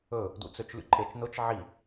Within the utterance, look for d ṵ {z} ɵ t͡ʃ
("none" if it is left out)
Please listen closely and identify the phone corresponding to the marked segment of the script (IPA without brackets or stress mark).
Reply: t͡s